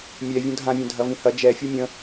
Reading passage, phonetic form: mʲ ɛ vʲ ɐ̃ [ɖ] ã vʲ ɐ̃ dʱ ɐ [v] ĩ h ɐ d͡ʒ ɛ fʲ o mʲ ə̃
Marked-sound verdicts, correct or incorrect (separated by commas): incorrect, correct